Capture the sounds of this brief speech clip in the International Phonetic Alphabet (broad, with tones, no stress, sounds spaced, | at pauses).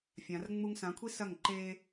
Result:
fʲ ã˨˦ r ŋ͡m u˥ ŋ s ã˨˦ kʷʰ i˥ s ɐ˥˩ ŋ ǃ e˥